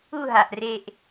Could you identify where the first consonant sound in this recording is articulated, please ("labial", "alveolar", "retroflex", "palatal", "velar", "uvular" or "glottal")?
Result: glottal